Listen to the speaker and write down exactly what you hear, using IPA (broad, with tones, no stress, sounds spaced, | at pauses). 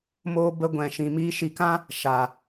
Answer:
m oː˦ b ə˦ ɡʷ ɛ̃˧ ʃ ĩ˧ m iː˦ ʃ i˧ k ã˦ | ʃ a˨